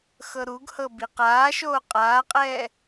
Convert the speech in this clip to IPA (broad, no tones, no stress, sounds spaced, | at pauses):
x ɤ ɾ u ɡ h ɤ b i q aː ʃ oː qʼ aː qʼ ɛː